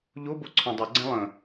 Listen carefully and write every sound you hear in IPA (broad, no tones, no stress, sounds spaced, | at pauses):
ʎ o b o ǀʰ ɔ̃ dˤ ʊ ɡ͡ǀ ɛ̃ lˠ ə̃